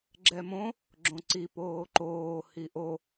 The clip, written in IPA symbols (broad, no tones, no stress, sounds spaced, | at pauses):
ɡ͡ǁ ɛ m õ | ɡ͡ǁ õ ǀ i p oː ǃ oː h i ʔ o